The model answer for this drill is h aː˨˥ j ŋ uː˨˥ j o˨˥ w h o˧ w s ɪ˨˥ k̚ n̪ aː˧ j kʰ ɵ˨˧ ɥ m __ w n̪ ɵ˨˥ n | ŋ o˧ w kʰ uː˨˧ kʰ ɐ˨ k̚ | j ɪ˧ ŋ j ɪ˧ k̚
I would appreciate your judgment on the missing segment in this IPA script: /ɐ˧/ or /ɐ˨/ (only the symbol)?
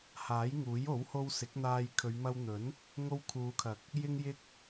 ɐ˧